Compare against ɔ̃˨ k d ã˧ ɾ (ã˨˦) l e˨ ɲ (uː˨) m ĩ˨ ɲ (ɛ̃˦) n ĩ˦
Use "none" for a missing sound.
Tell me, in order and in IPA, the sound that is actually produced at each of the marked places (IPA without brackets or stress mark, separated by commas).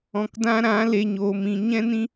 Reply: ã˨˦, oː˨, ɛ̃˦